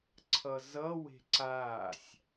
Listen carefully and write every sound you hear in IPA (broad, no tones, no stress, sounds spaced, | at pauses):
ǀʰ ʌ z ʌ w e̤ ǀ aː sʲ